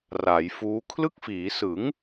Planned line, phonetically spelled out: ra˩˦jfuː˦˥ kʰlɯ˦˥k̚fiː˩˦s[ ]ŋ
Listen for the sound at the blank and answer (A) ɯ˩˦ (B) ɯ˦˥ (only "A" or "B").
A